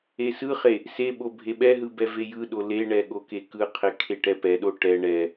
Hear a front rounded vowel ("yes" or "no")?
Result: no